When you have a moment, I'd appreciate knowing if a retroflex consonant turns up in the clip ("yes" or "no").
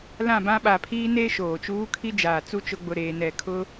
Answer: no